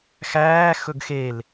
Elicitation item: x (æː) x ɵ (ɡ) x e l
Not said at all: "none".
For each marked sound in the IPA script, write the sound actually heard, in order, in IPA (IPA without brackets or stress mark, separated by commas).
æː, ɡ